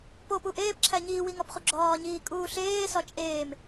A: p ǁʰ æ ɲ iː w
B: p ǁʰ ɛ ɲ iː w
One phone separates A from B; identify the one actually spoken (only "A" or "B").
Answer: A